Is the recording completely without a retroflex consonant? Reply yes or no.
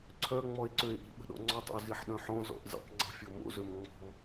yes